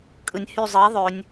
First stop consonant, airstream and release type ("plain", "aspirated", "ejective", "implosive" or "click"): ejective